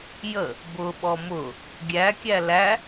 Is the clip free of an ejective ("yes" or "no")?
yes